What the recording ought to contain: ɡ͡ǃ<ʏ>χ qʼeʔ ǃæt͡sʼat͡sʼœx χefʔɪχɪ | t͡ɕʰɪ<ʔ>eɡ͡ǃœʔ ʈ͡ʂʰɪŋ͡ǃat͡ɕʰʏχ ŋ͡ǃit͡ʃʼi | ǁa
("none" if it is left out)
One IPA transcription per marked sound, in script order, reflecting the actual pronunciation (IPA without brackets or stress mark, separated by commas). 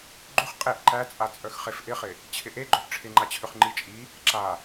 ʏ, ʔ